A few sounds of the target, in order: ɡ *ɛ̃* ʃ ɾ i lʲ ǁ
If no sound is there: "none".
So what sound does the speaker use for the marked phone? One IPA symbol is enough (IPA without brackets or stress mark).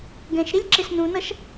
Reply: ɛ̃